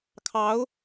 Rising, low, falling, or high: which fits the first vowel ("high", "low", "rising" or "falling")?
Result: rising